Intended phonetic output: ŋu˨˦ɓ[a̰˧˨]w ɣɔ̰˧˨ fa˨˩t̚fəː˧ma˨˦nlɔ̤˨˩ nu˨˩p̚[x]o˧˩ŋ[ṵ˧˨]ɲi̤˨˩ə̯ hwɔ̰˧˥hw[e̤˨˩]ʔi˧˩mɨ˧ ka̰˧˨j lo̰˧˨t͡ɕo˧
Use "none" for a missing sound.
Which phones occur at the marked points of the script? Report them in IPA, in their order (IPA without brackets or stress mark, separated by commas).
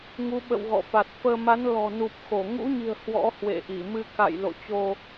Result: ə̰˧˨, x, ṵ˧˥, ḛ˧˨